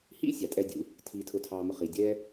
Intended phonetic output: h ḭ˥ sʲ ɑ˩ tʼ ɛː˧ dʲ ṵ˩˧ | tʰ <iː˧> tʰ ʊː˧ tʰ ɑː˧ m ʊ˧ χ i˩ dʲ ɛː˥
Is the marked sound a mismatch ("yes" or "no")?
no